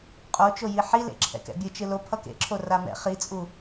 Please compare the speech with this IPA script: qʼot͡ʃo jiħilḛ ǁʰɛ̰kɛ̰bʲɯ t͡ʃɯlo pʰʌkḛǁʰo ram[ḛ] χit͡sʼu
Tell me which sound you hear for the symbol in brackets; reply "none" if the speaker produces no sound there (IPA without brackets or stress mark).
ɛ̰